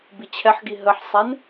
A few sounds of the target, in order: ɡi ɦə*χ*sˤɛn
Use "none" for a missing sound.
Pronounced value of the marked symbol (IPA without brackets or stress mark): ħ